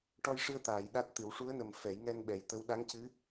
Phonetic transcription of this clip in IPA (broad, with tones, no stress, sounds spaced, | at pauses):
ʈ ɔ˧ j ʂ ɨ˧ ə̯ t̪ aː˨˩˨ j ɗ a˦˥ t̚ t̪ ɨ˨˩˦ w ʂ u˧˥ ə̯ n ə˨˩ m f ɛ˨˩˦ j ŋ ɛ˧ n ɓ ɛ˨˩ j t̪ ə˧˥ w ɗ a˧˥ ŋ c ɨ˧˥